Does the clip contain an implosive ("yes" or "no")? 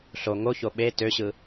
yes